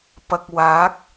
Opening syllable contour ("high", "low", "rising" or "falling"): low